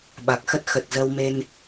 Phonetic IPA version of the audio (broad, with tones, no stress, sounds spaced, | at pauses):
ɓ a˨˩ k̚ x ə˦˥ t̚ x ə˨˩ t̚ z ə˧ w m e˧ n